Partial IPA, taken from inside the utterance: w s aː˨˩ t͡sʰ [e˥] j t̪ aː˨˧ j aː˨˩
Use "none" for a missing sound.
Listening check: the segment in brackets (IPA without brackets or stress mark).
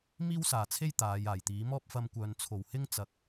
e˥